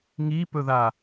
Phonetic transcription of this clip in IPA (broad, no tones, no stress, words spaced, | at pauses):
ŋipɵða